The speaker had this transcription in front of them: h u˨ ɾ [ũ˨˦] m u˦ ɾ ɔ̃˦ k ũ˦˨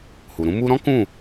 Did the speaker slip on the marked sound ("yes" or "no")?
no